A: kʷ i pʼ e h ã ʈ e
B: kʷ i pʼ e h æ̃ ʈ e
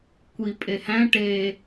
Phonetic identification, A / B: B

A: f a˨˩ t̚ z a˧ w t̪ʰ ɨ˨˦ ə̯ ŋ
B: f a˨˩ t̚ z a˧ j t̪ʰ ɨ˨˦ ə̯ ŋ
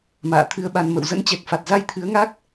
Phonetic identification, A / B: B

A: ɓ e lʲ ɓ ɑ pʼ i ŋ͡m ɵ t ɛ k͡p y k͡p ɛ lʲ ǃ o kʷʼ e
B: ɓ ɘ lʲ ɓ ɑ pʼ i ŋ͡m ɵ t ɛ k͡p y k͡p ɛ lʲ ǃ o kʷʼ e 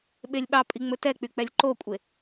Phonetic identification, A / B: A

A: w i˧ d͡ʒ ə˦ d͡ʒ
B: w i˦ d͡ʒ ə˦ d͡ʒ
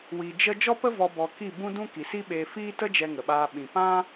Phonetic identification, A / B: A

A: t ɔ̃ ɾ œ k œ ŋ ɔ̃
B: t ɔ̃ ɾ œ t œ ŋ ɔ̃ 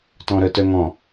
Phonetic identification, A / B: B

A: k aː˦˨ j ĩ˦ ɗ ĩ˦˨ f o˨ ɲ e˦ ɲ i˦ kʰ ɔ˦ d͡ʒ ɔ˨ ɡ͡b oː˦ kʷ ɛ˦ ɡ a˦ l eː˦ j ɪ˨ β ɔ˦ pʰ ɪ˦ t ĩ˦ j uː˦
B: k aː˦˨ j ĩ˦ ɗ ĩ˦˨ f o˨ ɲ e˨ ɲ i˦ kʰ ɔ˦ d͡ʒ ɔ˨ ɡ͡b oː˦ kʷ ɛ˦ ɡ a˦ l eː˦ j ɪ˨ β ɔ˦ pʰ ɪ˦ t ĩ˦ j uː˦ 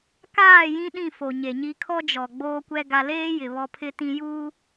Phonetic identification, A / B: B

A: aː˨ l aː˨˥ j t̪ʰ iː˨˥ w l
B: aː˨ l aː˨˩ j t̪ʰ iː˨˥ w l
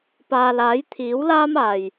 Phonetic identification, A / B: A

